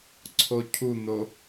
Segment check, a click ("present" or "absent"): present